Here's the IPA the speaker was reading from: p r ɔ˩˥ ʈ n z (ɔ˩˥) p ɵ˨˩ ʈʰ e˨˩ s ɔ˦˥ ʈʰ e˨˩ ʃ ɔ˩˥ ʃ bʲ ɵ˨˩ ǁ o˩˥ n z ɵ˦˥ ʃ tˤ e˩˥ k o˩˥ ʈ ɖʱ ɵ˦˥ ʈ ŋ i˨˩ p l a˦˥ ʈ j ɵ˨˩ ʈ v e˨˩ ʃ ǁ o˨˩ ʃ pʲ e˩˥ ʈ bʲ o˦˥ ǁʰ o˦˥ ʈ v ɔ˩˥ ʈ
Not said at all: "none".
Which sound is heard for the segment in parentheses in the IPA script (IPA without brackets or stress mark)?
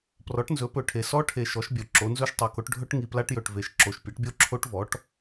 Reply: ɵ˩˥